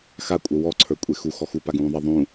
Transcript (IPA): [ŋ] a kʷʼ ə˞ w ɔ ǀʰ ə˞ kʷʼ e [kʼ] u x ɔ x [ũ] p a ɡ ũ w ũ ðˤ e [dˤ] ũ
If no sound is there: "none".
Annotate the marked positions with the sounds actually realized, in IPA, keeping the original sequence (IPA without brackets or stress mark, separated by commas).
x, x, u, ðˤ